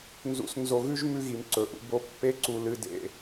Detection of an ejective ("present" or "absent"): absent